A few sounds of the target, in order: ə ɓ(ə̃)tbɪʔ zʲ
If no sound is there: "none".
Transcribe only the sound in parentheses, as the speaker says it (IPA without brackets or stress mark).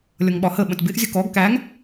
ə̃